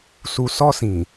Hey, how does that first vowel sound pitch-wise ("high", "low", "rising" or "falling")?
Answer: low